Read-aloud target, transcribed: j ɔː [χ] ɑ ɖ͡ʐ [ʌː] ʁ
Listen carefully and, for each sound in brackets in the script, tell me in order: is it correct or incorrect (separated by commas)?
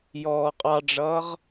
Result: incorrect, correct